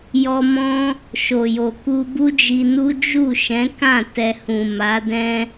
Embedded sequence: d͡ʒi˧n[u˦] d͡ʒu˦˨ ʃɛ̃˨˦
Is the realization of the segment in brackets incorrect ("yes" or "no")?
no